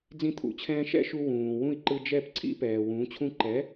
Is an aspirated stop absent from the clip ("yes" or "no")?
no